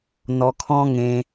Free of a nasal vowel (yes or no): no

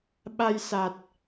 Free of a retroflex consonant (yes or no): yes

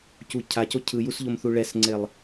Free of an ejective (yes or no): yes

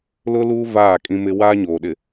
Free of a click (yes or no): yes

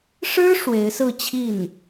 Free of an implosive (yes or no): yes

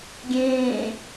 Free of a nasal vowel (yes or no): no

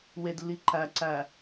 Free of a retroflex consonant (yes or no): yes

